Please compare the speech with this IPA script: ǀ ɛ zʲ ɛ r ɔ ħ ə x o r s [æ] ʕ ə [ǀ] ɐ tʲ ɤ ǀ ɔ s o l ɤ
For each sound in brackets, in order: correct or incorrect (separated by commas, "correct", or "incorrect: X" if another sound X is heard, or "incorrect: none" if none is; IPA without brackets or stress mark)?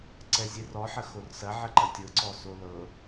incorrect: ɐ, incorrect: ǃ